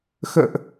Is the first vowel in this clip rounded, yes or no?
no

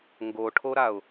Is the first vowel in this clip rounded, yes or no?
yes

